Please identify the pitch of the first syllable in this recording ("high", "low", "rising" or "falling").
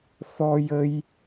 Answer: high